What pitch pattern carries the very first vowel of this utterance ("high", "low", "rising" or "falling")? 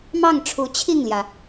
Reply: falling